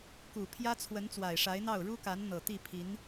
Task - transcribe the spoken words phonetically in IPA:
k u˨˩ pʰ j ä˥ t͡sʰ w ə˧˥ n t͡s w a˨˩ ɪ̯ ʂ a˧˥ ɪ̯ n̪ ɑ˥˩ ʊ̯ ɻ u˥ k a˧˥ n n̪ ɤ˨˩ t̪ i˥˩ pʰ i˧˥ n

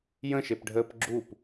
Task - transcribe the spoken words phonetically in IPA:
j ə̃ ʃ e p ɖʱ əː p ɡ͡ǁ u p

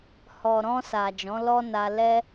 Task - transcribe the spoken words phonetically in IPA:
h ɔ˨ ɾ ɔ̃˧ s a˨ d͡ʒ ɔ̃˨˦ l ɔ˦ n a˧ l ɛ˦

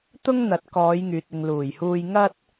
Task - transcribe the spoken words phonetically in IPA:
t̪ ʊ˥ ŋ n̪ ɐ˨˥ t̚ k ɔː˨˧ j ŋ yː˨ t̚ ɪ˨ ŋ l uː˨˩ j h uː˧ j ŋ ɐ˥ t̚

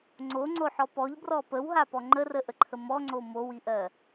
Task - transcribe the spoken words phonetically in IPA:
ŋ͡ǀ o ŋ͡ǀ o ħ ɔ p ɔ ʎ b r ɔ p ə w ɦ a p ɔ ŋ͡ǃ ə r ə ʔ ə ǃʰ ə m ɔ ŋ͡ǀ o m o w i ʔ ɜ

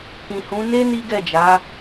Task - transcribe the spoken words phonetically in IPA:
k ĩ˨ h ũ˨˦ n e˦ n i˦ ɡ ɛ˦˨ d͡ʒ a˨˦

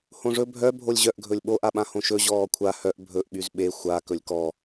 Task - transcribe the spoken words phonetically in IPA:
h õ ʐ ɵ bʱ œ bʱ o lʲ ʑ œ ʔ ɡʱ ɵ lʲ ɓ o ʔ a ɓ ã h õ ʃ ɵ ʑ ɔː kʷʰ a h œ ʔ bʱ ɵ ʔ ɓ y z ɓ e xʷ a k ɵ lʲ k ɔ

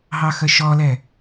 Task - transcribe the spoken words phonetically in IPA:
ɦ ɑ x ə ʃ ɔ l ɛ

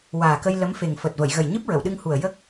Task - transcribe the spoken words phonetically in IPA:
w aː˨˩ k ə˧ j l ə˧˥ m f e˨˩ ŋ f əː˨˩ t̚ v ə˨˩˨ j ɣ ə˨˩ j ɲ ɨ˦˥ p̚ ɹ ə˨˩˨ w ɗ ɨ˧ ŋ h u˨˩ ə̯ j ə˦˥ k̚

